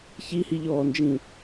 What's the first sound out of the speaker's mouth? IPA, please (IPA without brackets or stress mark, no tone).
ç